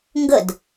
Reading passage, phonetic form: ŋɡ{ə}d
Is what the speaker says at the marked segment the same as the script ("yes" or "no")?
yes